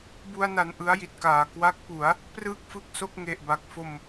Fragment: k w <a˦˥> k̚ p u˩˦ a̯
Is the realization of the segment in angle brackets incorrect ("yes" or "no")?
no